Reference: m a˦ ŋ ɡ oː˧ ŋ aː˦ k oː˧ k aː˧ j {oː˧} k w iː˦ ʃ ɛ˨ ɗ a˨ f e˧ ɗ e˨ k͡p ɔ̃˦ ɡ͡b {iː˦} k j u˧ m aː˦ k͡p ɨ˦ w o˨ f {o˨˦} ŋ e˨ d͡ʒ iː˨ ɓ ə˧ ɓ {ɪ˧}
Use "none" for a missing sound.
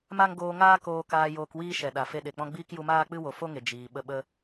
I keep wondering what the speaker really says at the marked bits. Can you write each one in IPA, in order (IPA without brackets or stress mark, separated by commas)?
oː˧, iː˦, o˦, ə˧